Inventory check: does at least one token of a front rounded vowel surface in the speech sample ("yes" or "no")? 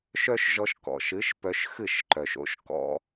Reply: yes